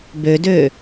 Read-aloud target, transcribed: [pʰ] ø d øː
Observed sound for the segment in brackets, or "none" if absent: b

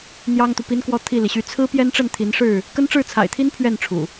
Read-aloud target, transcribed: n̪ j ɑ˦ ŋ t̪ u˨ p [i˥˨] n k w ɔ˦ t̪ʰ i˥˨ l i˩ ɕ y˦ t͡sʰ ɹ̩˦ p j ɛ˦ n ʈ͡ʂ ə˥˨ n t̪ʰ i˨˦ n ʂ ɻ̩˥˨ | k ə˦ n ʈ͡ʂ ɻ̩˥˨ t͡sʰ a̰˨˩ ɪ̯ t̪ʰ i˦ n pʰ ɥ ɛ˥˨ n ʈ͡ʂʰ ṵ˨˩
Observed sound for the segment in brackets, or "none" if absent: i˦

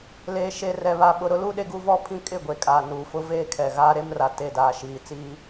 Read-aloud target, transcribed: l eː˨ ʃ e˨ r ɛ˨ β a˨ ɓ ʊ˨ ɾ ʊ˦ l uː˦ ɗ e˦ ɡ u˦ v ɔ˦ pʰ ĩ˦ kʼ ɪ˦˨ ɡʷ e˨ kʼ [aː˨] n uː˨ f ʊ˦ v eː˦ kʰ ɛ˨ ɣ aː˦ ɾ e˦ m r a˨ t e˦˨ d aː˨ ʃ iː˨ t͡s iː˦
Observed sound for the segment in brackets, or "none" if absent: aː˨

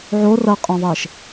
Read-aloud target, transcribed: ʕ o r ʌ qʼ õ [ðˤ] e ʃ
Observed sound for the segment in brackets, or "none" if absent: ðˤ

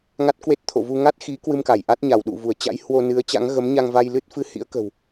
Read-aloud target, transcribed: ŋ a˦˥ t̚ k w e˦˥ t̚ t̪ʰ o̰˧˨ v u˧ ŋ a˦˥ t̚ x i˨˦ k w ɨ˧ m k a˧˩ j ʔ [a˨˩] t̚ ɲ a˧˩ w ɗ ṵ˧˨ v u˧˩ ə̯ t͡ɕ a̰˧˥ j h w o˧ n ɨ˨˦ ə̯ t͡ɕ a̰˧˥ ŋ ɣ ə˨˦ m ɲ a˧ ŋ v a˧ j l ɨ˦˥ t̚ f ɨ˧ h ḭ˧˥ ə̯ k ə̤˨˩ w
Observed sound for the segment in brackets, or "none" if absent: a˦˥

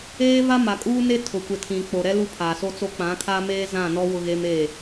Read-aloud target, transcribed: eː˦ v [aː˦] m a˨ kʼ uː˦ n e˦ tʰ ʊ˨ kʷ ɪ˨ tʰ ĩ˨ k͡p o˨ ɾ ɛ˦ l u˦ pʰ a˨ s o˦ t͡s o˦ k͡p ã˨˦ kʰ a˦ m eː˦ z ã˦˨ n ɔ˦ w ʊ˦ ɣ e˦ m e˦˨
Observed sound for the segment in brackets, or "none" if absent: a˦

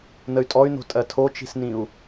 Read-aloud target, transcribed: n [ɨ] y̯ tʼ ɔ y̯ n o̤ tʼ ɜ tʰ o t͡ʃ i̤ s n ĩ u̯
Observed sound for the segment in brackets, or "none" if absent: ə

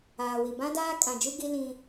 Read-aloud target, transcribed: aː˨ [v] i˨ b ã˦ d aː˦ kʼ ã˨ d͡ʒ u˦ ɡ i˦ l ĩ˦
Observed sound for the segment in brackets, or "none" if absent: w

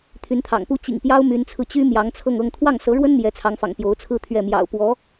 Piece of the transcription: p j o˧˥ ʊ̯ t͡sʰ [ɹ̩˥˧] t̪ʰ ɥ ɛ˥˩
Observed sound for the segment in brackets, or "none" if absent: ɹ̩˥˧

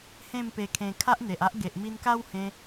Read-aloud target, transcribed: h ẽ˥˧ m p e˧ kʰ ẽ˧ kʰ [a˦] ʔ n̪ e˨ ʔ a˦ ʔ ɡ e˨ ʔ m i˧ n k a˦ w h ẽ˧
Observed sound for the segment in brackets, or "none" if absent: a˦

